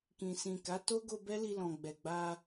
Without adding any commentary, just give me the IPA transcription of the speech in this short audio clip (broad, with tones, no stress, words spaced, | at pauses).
kĩ˨sĩ˨ ka˨˦to˦ɡo˧ bɛ˦li˧lɔ̃˨ ɡ͡bɛ˨ɡ͡ba˧